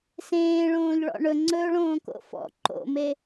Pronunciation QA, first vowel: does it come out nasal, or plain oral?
nasal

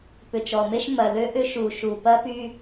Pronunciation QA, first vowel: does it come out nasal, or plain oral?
oral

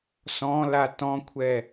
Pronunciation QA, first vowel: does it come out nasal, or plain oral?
nasal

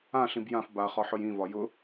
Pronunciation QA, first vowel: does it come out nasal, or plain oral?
nasal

